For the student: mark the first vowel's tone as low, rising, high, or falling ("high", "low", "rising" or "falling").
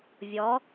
rising